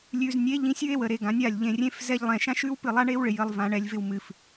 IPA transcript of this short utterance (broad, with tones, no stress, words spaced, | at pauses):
lʲʉ˨znʲe˨˦ ʎĩ˧sʲɨ˦e̯wə˨ɾe˨ ɡã˨˦nʲa˦˨lʲ ʎẽ˨rʲẽ˧fzɛ˧ʎlˠɛ̃˨ ʃã˦ʃʉ˦wpɨ˦˨lˠa˦ ɳe˦wɭɪ˨ jə˧lˠvã˧ɳɛ˧lʲ vɪ˧wmɨ˨f